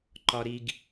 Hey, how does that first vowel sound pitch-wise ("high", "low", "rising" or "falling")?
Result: high